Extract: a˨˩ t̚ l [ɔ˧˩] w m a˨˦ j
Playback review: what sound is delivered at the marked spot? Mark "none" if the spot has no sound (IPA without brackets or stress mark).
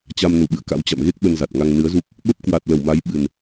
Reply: ə˧˩